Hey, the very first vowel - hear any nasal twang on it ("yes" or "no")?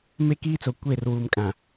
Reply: no